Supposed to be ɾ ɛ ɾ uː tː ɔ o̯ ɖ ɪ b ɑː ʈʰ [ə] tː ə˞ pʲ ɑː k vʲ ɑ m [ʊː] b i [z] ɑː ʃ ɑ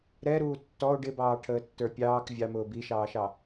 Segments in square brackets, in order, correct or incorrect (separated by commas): incorrect, correct, incorrect